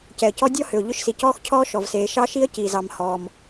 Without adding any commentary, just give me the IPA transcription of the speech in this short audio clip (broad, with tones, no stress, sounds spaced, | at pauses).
c ɛ˩ ə̯ c ɔ˥ dʲ ɔ˥ h ʏ˩ ʊ̯ ʎ ʏ˥ ʃ s i˩ c ɔː˥ x cʰ ɔː˥ ʃ ɔ˩ v s eː˩ ʃ ɑ˥ ʃ i˥ ə̯ c iː˩ z ɑ˩ m h ɔː˩ m